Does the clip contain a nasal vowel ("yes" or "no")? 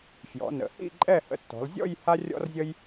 no